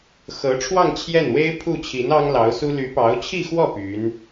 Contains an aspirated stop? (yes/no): yes